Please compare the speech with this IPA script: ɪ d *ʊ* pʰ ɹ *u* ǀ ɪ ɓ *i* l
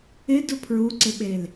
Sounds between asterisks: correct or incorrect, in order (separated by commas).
correct, correct, incorrect